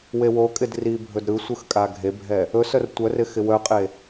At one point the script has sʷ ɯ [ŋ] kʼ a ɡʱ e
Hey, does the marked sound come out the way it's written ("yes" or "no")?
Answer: no